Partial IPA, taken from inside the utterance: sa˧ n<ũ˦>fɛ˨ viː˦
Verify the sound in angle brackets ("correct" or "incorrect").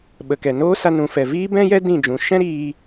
incorrect